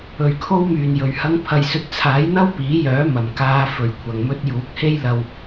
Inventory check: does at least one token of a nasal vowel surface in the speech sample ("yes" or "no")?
no